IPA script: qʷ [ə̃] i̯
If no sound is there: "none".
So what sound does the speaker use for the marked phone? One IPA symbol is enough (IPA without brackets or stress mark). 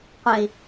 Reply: ə̃